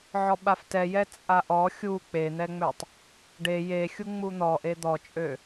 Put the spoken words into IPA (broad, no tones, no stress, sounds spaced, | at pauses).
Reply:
ʕ ɔ ɓ a f t ɛ j ɛ t͡sʼ a ʔ ɔ xʲ u k͡p e n̪ ɛ ŋ͡m ø tˤ | ɖ e j e xʲ u ŋ͡m u n̪ ɔ ʔ e d̪ ɔ t͡ʃʼ ø